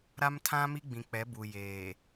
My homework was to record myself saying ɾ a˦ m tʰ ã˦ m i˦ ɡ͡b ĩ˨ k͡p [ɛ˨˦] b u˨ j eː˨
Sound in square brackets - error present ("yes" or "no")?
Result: no